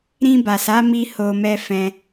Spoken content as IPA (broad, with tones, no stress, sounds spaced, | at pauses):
ɾ ĩ˧ b a˨ s a˨˦ m i˧ h o˧ m ɛ˧ f ɛ̃˧